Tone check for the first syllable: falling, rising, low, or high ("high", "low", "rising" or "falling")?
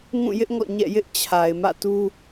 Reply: falling